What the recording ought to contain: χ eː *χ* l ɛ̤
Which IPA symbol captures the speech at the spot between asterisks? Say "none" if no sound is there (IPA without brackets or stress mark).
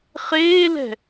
none